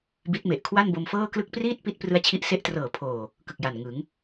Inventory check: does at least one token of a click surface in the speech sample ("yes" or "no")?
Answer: no